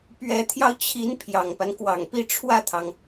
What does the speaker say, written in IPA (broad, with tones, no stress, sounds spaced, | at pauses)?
p ɥ ɛ˧˥ t̪ʰ j ɑ˧ ʊ̯ t͡ɕʰ i˧˥ n pʰ j ɑ˨˩ ŋ p a˦ n k w ɑ˨˩ ŋ p i˥˧ ʈ͡ʂʰ w ä˥˩ t̪ʰ ɑ˩ ŋ